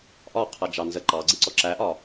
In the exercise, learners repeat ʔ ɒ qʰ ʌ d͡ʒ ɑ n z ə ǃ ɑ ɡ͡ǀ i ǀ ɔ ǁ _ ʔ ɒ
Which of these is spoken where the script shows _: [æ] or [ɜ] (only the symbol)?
æ